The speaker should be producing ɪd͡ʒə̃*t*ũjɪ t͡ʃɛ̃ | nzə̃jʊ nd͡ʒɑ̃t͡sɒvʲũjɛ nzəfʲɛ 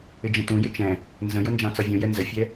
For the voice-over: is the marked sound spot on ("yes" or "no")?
yes